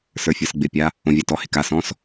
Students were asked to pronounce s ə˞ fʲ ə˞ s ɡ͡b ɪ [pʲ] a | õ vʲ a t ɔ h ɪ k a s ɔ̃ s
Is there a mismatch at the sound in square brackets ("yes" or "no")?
no